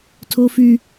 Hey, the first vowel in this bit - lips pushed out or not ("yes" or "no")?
yes